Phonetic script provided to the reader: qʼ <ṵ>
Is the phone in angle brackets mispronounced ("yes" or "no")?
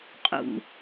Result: no